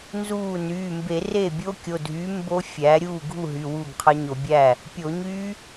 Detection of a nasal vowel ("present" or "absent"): absent